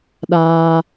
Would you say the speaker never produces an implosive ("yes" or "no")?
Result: no